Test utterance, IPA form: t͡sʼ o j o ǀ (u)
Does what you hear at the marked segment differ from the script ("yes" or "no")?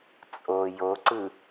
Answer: yes